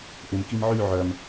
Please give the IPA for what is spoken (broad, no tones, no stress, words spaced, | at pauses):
ʔɪmkim ʕy ʕœm